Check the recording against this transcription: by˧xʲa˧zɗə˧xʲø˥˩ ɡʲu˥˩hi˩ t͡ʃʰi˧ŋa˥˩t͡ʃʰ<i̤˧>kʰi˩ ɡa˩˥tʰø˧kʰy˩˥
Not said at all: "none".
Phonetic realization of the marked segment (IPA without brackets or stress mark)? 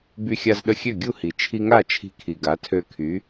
i̤˧